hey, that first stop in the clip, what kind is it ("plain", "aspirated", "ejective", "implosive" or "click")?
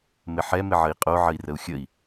ejective